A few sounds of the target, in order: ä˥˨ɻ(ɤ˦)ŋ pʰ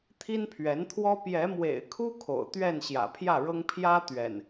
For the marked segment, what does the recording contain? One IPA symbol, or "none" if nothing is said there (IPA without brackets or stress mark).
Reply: ɤ˦